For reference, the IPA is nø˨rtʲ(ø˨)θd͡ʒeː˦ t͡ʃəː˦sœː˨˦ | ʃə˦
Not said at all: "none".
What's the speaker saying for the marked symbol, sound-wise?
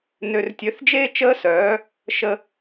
ø˨˦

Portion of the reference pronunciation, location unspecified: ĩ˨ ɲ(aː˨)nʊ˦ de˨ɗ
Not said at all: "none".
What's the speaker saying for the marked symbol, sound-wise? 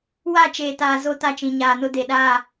aː˨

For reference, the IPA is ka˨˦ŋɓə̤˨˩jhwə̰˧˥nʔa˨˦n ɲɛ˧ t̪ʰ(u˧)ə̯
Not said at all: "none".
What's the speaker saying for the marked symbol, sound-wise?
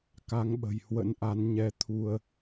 u˧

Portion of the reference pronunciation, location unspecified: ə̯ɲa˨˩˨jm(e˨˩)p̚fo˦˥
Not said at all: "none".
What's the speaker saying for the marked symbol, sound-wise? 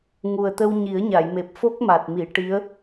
e˨˩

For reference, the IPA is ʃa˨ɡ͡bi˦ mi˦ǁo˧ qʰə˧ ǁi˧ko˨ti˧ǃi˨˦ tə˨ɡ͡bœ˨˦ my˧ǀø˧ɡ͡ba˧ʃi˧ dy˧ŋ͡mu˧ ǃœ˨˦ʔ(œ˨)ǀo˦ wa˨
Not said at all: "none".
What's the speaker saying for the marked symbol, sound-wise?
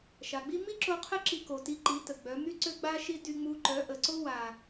ə˨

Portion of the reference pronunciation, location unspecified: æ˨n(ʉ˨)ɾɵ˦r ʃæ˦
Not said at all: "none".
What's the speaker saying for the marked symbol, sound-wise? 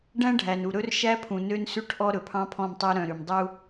u˨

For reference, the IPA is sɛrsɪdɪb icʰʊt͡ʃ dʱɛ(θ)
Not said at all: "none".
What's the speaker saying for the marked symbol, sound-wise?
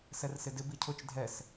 s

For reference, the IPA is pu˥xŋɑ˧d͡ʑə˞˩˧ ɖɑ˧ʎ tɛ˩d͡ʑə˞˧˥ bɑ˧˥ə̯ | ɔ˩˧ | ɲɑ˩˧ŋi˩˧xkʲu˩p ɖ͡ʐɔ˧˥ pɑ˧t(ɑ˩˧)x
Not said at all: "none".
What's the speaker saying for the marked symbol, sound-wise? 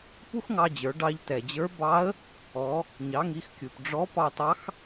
ɑ˧˥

